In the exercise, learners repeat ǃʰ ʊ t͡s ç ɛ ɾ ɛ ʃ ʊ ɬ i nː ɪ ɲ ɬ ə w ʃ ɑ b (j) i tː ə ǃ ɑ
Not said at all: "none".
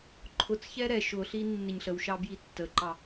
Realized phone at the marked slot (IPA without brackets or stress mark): j